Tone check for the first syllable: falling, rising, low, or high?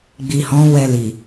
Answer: low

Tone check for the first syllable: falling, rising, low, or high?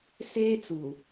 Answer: high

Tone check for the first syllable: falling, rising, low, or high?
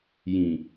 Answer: low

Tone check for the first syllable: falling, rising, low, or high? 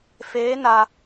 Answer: rising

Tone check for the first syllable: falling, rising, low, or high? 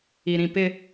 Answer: low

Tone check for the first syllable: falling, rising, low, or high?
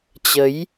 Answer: rising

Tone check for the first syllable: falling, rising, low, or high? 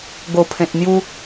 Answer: low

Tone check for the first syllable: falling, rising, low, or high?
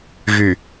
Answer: low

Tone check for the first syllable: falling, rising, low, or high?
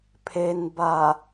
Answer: low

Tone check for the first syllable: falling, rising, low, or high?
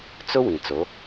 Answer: high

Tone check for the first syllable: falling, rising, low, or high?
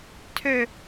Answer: falling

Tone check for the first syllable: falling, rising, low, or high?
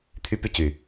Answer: high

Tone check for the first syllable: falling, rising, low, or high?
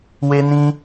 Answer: high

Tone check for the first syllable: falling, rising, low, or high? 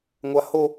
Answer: high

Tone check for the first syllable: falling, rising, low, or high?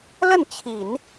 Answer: falling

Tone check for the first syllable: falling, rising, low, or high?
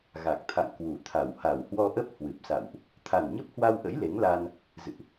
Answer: low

